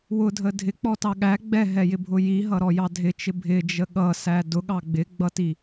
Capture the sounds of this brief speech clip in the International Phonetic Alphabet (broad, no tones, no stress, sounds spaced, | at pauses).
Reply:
w ʊ dʱ ə dʱ ɪ k͡p ɔ t ɑ ɠ æ ɡ͡b ɛ ɦ ɛ j ɪ bʱ ʊ j i ɦ ʌ ɾ ɔ j ɑ dʱ ɪ t͡ʃ ɪ bʱ ɪ d͡ʒ ə ɠ ʌ s æ d ʊ ɠ ɑ ɡ͡b ɪ ɡ͡b ʌ t i